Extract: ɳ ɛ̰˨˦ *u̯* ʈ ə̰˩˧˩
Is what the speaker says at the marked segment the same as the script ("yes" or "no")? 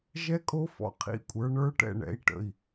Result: no